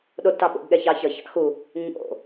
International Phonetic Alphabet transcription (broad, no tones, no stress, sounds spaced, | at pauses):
ɗ o d t ɑ ɓ o̰ ɡ ɠ ɛ ç ɑ ç ʌ ç ɑ̰ x u | ɲ o̰